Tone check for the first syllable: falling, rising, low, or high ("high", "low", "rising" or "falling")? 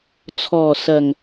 low